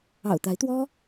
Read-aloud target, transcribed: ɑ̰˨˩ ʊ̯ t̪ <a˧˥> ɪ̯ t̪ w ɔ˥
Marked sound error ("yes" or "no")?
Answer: no